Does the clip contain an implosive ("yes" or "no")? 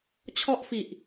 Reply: no